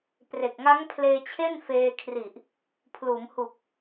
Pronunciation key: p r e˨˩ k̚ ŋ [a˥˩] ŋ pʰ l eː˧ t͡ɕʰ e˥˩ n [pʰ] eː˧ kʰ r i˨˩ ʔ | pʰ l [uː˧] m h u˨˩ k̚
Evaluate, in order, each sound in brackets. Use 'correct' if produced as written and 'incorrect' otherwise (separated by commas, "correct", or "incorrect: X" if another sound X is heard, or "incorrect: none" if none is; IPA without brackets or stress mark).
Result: incorrect: a˦˥, incorrect: f, incorrect: uː˩˦